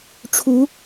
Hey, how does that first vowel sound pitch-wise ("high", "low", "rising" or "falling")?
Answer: rising